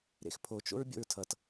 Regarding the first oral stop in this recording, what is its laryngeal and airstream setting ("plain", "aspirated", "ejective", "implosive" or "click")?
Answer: aspirated